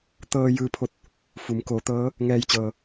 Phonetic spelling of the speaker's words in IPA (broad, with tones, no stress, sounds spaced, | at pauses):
t̪ ɤː˧ j ɯː˧ pʰ o˥˨ t̚ | f u˩˧ m k oː˩˧ t̪ ɤː˧˥ | ŋ ɛː˧ j t͡ɕ ɤː˩